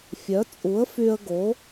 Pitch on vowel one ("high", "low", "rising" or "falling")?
rising